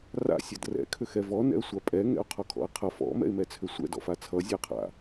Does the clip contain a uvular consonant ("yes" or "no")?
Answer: yes